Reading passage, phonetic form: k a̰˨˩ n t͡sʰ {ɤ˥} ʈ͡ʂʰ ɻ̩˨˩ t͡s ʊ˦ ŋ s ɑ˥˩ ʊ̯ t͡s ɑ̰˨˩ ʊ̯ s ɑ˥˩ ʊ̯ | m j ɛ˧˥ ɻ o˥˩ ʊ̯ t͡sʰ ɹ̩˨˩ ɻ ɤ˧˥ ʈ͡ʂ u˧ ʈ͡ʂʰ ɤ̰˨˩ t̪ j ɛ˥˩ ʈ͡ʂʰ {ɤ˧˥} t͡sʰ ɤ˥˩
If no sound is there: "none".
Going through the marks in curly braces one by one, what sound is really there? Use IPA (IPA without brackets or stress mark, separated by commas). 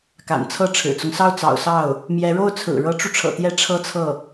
ɤ˥, ɤ˥